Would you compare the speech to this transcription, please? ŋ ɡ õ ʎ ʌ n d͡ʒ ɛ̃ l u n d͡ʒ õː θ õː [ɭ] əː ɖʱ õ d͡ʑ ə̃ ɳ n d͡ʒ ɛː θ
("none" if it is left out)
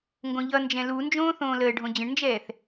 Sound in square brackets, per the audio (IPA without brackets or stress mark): l